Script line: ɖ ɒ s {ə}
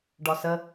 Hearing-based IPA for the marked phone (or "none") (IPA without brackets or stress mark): ə